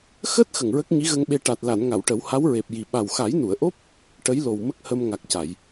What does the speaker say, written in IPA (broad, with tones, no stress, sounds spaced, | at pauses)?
x əː˦˥ t̚ x ə˨˩ ŋ ɹ ə˦˥ k̚ ɲ i˧˥ ɣ ə˧ ŋ ɓ e˧ ʈ a˨˩ t̚ l a˨˩˨ n ŋ a˨˩˨ w ʈ ə˨˩˦ w h a˧˥ w ɹ e˨˩ p̚ j i˨˩ ɓ a˨˩ w x a˨˩˦ j n u˨˩˨ ə̯ ʔ o˦˥ p̚ | ʈ ə˧˥ j l o˨˩ w m ə˦˥ k̚ h ə˧ m ŋ a˨˩ k̚ c a˨˩˨ j